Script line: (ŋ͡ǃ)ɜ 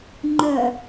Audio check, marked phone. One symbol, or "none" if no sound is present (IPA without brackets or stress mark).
ŋ͡ǃ